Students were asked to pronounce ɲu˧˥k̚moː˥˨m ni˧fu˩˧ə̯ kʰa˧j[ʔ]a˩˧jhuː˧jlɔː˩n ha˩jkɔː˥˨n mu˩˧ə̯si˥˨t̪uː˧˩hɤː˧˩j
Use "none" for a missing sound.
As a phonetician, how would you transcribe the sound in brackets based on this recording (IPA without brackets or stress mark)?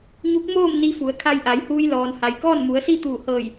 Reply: ʔ